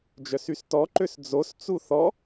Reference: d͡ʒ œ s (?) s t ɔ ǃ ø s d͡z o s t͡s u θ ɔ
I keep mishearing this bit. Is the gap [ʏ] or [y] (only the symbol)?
y